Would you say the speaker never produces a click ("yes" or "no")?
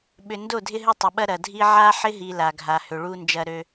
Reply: yes